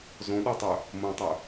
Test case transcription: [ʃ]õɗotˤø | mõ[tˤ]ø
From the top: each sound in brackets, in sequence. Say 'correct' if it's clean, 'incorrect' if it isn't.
incorrect: z, correct

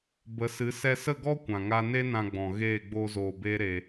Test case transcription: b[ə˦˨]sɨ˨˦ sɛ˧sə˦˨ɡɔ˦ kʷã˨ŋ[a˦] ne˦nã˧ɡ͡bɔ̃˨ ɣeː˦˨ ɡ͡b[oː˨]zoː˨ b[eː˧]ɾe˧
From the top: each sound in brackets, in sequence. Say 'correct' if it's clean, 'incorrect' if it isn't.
incorrect: ə˨˦, correct, incorrect: oː˧, incorrect: eː˦

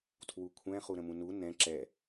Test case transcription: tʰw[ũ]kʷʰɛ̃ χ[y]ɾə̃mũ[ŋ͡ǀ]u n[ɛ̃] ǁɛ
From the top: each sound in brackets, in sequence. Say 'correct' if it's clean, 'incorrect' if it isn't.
incorrect: u, incorrect: u, incorrect: n, correct

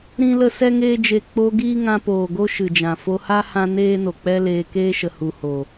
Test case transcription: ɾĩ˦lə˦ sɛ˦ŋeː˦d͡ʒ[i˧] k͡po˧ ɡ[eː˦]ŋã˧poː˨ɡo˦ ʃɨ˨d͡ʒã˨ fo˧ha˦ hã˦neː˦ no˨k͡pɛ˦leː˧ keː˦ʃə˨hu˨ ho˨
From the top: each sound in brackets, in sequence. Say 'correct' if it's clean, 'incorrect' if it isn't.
incorrect: e˧, incorrect: iː˦

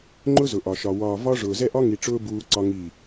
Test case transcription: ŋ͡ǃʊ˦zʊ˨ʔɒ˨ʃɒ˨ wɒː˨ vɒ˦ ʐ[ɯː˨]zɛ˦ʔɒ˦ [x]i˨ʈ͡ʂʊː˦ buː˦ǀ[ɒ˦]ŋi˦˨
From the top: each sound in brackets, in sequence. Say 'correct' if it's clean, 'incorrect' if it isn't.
incorrect: ʊː˨, incorrect: ŋ, correct

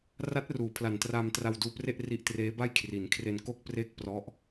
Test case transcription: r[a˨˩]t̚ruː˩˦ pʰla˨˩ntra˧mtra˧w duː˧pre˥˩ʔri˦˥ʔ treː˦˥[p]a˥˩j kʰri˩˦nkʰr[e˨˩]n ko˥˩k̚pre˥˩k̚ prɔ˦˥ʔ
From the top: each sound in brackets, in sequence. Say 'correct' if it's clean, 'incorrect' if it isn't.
incorrect: a˦˥, incorrect: b, incorrect: e˧

